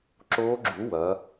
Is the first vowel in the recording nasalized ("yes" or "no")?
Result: no